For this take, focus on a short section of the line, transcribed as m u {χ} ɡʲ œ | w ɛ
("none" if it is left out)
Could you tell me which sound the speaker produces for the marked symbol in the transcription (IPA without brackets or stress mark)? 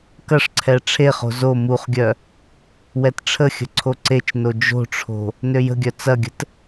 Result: χ